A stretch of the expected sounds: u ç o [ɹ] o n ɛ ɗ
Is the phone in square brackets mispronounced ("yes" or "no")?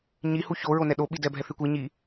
no